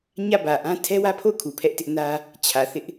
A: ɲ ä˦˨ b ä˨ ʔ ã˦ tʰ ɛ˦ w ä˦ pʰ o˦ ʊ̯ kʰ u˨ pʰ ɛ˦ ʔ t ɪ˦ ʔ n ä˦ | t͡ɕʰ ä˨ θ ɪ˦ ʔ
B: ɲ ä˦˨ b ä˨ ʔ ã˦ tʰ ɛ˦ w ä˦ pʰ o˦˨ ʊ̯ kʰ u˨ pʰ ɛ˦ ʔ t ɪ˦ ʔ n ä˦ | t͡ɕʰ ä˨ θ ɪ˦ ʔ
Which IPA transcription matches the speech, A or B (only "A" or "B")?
B